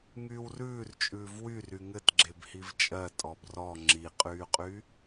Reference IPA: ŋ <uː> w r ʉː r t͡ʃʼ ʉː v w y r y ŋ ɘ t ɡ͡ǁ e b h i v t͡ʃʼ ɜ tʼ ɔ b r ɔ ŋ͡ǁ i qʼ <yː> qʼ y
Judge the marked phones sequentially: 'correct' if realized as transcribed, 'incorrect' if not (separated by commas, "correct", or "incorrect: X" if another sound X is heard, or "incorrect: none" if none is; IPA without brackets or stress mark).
incorrect: yː, correct